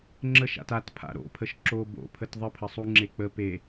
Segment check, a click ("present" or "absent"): present